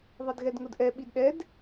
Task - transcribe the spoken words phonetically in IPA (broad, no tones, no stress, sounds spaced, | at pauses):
ðˤ ɪ d ɣ ɛ d ŋ ʊ d ʔ ɛ ɓ i d ɗ ɛ d